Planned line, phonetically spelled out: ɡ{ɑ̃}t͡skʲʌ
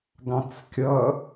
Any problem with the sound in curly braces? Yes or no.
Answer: no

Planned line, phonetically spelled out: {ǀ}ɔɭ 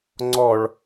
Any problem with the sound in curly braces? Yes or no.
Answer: yes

